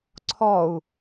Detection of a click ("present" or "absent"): present